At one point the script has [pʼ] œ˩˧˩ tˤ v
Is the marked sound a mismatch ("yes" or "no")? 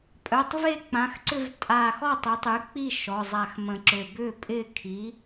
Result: no